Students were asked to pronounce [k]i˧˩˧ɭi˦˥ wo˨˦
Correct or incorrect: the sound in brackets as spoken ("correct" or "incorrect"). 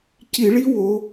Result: incorrect